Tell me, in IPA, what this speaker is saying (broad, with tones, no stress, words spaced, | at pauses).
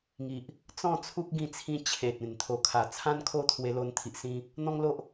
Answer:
ŋi˨ʔ | t͡sɔ̃˥˧t͡sʰu˦k̚ ɡĩ˥˧ t͡sʰĩ˧ t͡ɕʰe˨t̚ ẽ˨˩nt̪ʰo˨˩kʰa˨˩ t͡sʰã˦nkʰo˥˧t̪ʰwe˧lo˧n t̪ʰi˨ʔsĩ˧ | n̪ɔ̃˦ŋlo˦ʔ